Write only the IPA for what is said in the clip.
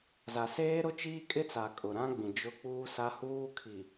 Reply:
za˨ seː˦ɾʊ˦t͡ʃiː˦ kʼɪ˦t͡sa˨ kʼʊ˨ɾã˦ɡ͡bĩ˨ d͡ʒʊ˦ k͡puː˦sa˦huː˦kʰi˨

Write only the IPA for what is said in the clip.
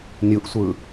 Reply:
nʲuʔsʷɯ

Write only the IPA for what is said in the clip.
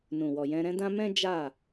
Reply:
nũ˨wɔ˨jɛ̃˧ ɾɛ̃˧dã˧ mɛ̃˦ d͡ʒa˦˨

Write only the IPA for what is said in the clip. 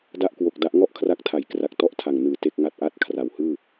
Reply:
da˥˩ʔkwo˨˩k̚da˦˥ʔ ŋɔ˥˩ʔkʰra˦˥k̚tʰa˨˩jkra˨˩k̚ tɔ˥˩ʔtʰa˨˩ŋnɯː˨˩ te˥˩k̚ŋa˥˩t̚ʔa˥˩t̚ kʰra˩˦whɯː˥˩

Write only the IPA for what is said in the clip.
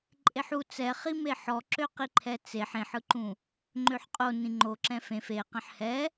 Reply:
ǃʼeħu t͡sɛχime ħɔǁøqi ǃʰɛt͡seħ ẽħɯǃũ | ŋ͡ǃøħqʼo nĩŋ͡ǃo ǁɛ̃fẽf e qɛ̃ħhɛ

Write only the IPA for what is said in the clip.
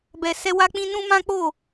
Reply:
bɛ˧sɛ˦ wa˦k͡pĩ˦ nũ˦mã˦k͡po˦˨

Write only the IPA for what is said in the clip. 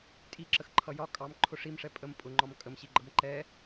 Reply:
tʼiǁəxǃʰʌ jɒ kʼɑmǃʰʊ ʂimʂɛ pʼəm pʼʊŋ͡ǃɒm kʼəmɕiɡ͡ǃʌm ǃɛ

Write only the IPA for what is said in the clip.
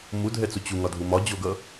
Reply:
mudʱɛt͡su t͡ɕuŋɒdʱu mɒd͡ʑoɡʌ

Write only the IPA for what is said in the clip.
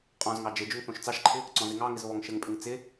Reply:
qʼɔ̃zŋɑ d͡ʒɘ d͡ʒʊŋθõʃt͡sɑʃǃʰɪ | ǀɔ̃zɪŋɑŋɪz βɔŋʃɘŋpʼɪŋ t͡sɪ

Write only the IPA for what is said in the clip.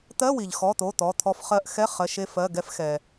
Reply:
t̪ɜ˧˥˧wi˩ʎxɔ˩˧˩t̪o˩˧˩ t̪ɔ˩˧˩t̪ʰɔ˧f χɜ˧ʔxɛ˧˥˧ χɜ˩˧˩ʃe˧fɜ˩˧˩ɡɛ˧f xɛ˩

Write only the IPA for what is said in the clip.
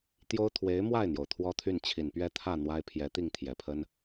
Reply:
t̪jo˥ʊ̯ t̪ʰwe˧˥ɪ̯mwa˥˩ɪ̯n̪jo˩ʊ̯ t̪ʰwɔ˥t̪ʰy˥˩nt͡ɕʰi˨˩n pɥɛ˥˧t̪ʰä˥˩ n̪wa˥ɪ̯pʰjɛ˧˥t̪i˥˩ŋ t̪ʰjɛ˨˩pʰə˥n

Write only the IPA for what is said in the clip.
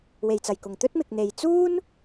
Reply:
we˨˩jt͡sɐ˨˩jkʊ˨˩ŋ t̪ɵ˥t̚mɪ˨k̚n̪e˨j t͡suː˥n

